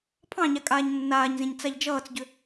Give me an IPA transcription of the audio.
pʰ ɑ̃ ɲ a kʼ aː ɲ nː aː ɲ z ẽ ɲ t͡s a ʎ d͡ʒ ʌː t͡s ɟ ʏ

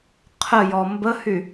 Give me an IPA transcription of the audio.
qʰ ə j ɔ m b ə h y

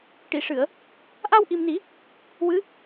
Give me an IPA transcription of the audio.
ʈ i˨˩˨ ʂ ɨ˨˩˨ ə̯ | ʔ a˧ w ʔ i˨˩ m n i˨˩˦ | w ɨ˧˥

